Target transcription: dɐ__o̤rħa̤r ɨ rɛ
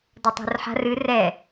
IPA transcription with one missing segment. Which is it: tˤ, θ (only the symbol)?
tˤ